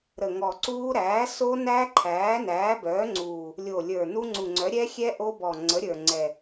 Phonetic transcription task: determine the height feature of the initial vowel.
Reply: mid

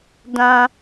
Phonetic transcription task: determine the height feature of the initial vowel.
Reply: low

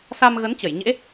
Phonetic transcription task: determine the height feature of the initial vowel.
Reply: low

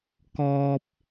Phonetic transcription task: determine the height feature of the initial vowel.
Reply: mid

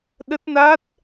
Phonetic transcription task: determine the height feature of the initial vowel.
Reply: mid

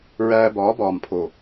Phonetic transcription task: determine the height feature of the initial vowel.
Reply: low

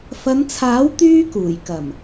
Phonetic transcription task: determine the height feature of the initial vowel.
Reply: low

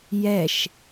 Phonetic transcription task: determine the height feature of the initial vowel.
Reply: mid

